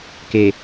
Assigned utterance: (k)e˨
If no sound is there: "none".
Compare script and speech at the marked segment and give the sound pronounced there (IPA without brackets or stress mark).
k